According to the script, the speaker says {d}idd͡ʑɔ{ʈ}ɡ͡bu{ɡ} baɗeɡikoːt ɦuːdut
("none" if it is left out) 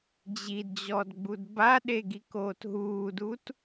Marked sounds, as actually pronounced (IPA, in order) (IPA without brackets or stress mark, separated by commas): d͡ʑ, d, d